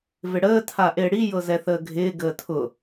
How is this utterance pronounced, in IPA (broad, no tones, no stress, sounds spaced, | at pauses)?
v ɪ ɽ əː tʰ a ʔ ɪː ɽ i j ɤ z ɛ θ əː ɡʱ ɪː ɡ əː tʰ ʊ